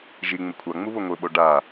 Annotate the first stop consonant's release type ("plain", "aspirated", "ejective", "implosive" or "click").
aspirated